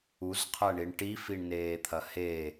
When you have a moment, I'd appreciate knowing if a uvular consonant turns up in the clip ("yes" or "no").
yes